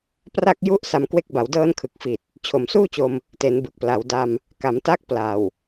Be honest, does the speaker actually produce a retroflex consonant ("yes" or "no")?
no